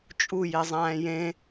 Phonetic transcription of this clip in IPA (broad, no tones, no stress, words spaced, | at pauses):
t͡ʃʼu jezˤæ̃ːjẽ